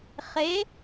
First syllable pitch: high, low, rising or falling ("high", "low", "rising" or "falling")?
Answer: rising